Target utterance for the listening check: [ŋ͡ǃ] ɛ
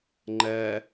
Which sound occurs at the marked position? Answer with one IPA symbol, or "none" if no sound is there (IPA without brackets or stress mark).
ŋ͡ǃ